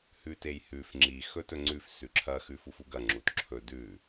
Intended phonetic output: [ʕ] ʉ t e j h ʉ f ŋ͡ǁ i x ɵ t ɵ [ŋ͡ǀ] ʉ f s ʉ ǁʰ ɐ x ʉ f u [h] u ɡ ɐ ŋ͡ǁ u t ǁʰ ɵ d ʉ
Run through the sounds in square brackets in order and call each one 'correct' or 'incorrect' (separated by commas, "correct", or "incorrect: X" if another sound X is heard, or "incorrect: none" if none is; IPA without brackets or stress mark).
incorrect: h, correct, incorrect: f